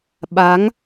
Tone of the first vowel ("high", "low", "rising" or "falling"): rising